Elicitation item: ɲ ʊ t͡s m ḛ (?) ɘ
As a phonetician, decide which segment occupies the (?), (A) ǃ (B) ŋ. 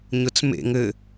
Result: B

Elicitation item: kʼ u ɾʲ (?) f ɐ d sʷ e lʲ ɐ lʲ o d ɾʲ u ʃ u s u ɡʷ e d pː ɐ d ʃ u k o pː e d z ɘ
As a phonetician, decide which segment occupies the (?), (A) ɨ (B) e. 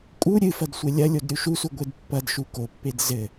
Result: A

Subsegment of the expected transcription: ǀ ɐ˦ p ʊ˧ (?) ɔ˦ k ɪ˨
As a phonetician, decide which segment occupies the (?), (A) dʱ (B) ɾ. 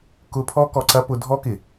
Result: A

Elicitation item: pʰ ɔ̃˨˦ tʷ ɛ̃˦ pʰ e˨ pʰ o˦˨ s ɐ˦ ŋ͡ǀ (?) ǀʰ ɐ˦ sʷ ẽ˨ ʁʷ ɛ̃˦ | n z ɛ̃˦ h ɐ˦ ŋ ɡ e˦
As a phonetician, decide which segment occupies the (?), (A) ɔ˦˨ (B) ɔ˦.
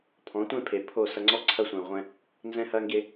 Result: B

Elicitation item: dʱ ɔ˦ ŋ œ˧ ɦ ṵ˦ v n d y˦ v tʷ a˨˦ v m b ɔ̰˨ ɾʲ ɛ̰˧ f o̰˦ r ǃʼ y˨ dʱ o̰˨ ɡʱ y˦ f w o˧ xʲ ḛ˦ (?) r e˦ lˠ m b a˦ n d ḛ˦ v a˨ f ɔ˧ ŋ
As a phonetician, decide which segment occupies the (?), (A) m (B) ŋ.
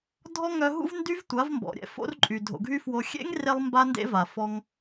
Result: B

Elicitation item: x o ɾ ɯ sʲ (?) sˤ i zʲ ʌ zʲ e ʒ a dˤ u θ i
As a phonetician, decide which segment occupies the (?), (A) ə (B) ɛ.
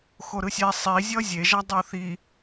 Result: B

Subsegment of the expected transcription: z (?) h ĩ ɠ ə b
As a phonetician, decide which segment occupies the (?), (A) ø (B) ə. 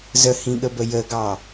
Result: B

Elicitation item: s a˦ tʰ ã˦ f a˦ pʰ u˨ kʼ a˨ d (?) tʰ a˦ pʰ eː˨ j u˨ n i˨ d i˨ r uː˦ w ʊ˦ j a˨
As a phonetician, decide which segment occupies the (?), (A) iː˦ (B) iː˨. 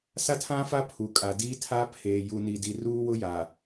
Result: A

